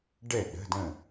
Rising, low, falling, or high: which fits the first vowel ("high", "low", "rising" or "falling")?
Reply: falling